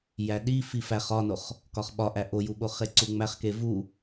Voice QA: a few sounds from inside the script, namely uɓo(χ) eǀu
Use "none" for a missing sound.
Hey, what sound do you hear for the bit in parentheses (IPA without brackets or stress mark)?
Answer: χ